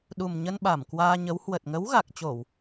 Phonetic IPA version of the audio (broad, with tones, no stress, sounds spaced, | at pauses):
ɗ u˨˩ m ɲ ə˧ n ɓ a˧˩ m k w aː˧ ɲ ə˨˦ w h w ə˨˩ t̚ ŋ ə˨˦ w ɣ a˨˩ k̚ t͡ɕ o˧˩˨ w